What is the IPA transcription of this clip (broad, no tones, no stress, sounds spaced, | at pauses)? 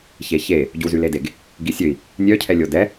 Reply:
ç e ç e | ɟ u z y l e d e ɡ | ɡ i sʲ ø i̯ | nʲ œ cʰ ɛ lʲ o d ɛ